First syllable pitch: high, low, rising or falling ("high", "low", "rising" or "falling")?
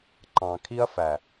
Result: low